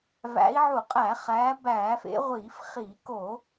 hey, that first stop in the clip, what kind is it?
ejective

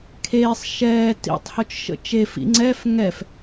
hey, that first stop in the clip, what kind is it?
aspirated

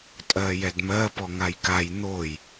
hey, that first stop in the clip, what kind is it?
ejective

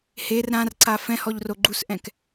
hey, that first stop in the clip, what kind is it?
click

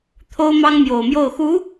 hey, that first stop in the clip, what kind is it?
aspirated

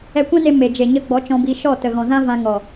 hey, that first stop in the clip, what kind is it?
plain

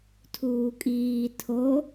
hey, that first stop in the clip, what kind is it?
aspirated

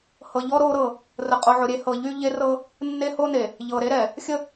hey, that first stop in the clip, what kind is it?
ejective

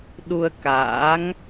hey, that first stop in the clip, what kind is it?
implosive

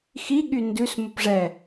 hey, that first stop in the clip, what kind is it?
implosive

